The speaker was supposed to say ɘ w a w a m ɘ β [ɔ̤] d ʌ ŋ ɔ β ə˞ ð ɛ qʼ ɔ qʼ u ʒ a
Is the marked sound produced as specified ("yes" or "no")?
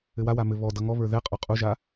no